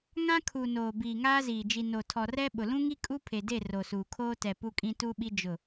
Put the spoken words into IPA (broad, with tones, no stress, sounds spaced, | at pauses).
ŋ ã˦ kʰ u˨ n oː˨ b iː˨ ŋ aː˦ z iː˨ d͡ʒ i˨ n o˨ tʰ ɔ˨ r ɛ˦ ɓ ʊ˨ l ũ˦ ŋ i˦ kʼ u˦ pʰ e˨ d e˦˨ r o˨ s uː˨ kʰ oː˦ t ɛ˨ p u˦ kʼ ĩ˦ t u˦ ɓ i˦ d͡ʒ ʊ˦˨